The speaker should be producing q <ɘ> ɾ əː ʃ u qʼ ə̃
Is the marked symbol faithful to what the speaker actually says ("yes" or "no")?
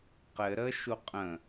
yes